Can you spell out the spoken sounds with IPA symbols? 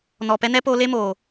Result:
n ɔ˨ p ɛ˦ n ɛ˦ p o˧ l e˦ m oː˨

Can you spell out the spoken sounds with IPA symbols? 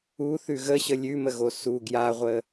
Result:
u θ ʉ ɣ ə ɕ ə lʲ ʉ m ə ɣ o s u ɡ j a ʁʷ ə

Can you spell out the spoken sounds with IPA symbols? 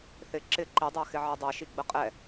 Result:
θ ɪ ǁ ɪ ǃ i dˤ æ x ɪ ʕ ɜ dˤ ɜ ʃ i ɡ͡b ə qʼ ɛ

